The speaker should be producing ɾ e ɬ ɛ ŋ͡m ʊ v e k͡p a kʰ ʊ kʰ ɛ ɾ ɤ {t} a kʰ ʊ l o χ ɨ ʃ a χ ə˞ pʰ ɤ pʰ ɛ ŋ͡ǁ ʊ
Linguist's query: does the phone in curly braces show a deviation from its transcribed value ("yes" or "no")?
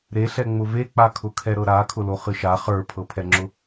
yes